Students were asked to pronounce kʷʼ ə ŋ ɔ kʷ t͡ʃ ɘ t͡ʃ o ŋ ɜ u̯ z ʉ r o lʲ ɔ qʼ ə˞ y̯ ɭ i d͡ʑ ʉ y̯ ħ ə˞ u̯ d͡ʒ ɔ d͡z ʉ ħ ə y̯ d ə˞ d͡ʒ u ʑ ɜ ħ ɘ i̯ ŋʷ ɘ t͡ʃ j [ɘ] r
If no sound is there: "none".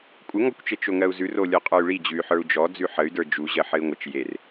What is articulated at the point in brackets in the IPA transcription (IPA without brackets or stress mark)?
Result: e